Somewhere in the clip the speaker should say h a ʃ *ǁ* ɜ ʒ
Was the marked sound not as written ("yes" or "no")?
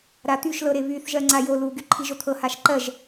yes